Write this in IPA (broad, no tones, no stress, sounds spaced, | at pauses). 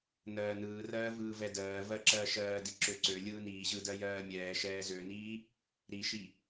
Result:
n ɜː n ɯː r ɜː v ɯː v ɛ d ɜː v ɜ ǁ ɜː ʃ ɜː d i ǁ ø ǀ ø lʲ ɯː n iː ʑ ɯ d ɜ j ɜː mʲ ɛː ʃ ɛː z ø n iː | ɾ i ʃ i